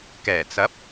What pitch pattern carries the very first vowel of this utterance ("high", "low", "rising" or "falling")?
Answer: low